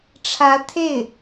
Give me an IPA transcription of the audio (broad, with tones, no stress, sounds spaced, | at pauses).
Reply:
ʈ͡ʂʰ ä˧˥ t̪ʰ e˥˩ ɪ̯